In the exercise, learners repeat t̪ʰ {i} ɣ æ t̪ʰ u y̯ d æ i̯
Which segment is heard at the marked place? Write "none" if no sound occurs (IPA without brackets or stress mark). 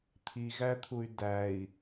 i